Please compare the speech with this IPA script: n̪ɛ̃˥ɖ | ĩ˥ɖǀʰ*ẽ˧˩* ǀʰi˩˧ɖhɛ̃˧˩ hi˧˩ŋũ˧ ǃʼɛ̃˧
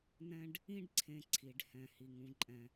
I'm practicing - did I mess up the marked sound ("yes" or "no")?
no